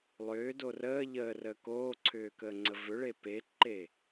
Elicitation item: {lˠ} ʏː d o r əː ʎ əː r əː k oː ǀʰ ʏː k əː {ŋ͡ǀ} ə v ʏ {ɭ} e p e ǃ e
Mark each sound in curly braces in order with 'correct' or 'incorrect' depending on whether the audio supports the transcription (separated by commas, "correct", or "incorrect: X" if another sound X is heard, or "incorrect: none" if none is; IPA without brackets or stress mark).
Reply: correct, correct, correct